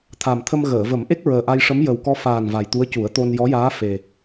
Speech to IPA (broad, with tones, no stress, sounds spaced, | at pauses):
t̪ʰ a˨˩ m t̪ʰ ə˧ m ɣ əː˨˩˨ v ə˨˩˦ m ʔ e˦˥ k̚ ɹ əː˨˩ ʔ a˧ j ʂ ə˧˥ m j ə˨˩ w k ɔ˧ f aː˨˩ n v a˨˩ j t̪ u˧˥ ə̯ c u˨˩˦ ə̯ t̪ o˧ n j ɔ˧˥ j aː˧˥ f e˨˩